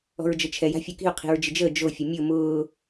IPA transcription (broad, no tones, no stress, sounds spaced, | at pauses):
ɔ̤ ɹ d͡ʒ ə t͡ʃʰ ɛ j a̤ fʲ o k i̤ ʊ̯ qʰ i̤ ɹ d͡ʒ ɪ d͡ʒ əː d͡ʒ o fʲ ə mʲ ʊ m ʊː